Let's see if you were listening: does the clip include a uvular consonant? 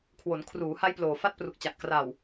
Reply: no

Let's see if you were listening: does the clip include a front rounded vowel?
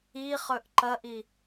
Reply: no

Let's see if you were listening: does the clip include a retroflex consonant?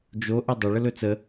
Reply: yes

